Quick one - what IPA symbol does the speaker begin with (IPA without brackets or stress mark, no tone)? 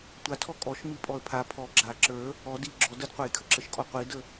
tʷ